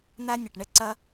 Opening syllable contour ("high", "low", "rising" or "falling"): high